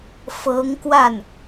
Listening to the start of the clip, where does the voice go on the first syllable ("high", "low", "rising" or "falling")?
rising